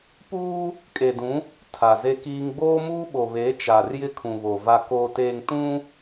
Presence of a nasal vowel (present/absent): present